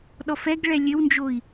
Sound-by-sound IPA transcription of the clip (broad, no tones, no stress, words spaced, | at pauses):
ɗɔfɛɡ ɭɛlʲɘwnd͡ʒoi̯